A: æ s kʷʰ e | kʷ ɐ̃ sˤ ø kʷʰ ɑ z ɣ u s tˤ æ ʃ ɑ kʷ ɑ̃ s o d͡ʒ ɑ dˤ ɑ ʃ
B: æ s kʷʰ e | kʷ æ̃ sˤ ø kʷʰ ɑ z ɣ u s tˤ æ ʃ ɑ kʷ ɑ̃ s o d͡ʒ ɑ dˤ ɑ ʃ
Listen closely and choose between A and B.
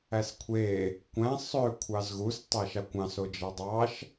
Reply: B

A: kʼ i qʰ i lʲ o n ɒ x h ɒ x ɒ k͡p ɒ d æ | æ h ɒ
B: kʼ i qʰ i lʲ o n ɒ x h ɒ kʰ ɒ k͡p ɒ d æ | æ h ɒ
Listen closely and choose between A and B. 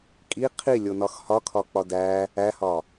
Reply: B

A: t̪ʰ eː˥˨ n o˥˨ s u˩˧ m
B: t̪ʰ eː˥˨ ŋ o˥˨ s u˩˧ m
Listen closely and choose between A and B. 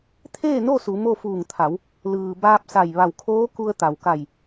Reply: A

